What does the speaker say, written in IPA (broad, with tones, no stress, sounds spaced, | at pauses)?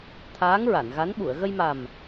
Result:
t̪ʰ aː˧˥ ŋ ɹ a˨˩˨ n ɣ a˧˥ n ɓ u˨˩˨ ə̯ ɣ ə˧ j m a˨˩ m